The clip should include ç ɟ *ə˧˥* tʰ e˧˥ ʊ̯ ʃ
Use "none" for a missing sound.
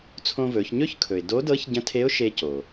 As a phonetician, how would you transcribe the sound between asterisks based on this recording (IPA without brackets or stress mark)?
ə̃˧˥